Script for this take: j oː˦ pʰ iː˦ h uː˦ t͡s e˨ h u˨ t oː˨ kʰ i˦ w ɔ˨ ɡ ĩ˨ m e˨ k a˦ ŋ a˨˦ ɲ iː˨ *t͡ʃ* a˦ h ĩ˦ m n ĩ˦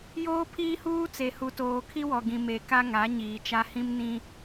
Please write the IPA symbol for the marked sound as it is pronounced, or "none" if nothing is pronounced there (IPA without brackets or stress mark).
t͡ʃ